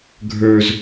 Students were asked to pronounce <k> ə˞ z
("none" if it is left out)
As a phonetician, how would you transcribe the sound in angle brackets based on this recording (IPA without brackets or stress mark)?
ɡʱ